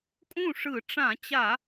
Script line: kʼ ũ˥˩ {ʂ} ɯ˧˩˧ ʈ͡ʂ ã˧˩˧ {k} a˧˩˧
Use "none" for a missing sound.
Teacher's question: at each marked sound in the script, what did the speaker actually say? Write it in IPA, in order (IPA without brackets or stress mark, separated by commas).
ʂ, t͡ɕ